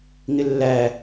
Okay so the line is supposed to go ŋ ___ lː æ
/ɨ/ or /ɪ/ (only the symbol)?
ɪ